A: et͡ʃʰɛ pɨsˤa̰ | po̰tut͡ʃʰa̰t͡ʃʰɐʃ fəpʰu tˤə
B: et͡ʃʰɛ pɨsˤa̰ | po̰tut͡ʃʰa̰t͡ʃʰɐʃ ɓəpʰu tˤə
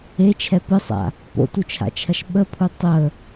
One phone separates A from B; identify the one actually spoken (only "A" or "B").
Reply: B